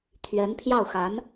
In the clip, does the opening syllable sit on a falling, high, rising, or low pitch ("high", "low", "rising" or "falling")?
rising